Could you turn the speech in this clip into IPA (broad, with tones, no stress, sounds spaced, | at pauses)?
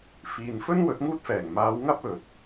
f iː˨ n f ɵ˥ n w ɵ˨˥ t̚ ŋ uː˥ t̚ f ɛː˨˩ ŋ m aː˨˧ w ŋ ɐ˥ p̚ ɵ˨ t̚